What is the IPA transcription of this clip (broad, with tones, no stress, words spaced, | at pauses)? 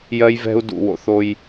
jɜ˦jvɛ̤˦u̯ dṵ˨wo̰˨θo˦j